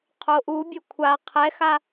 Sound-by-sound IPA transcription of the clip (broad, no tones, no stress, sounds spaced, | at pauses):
qʰ o ʔ u bʲ o kʷʰ a qʰ ɛ x a